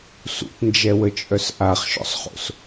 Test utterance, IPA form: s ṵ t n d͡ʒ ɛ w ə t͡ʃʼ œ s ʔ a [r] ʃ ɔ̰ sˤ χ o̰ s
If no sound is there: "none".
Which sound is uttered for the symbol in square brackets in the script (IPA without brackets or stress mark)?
χ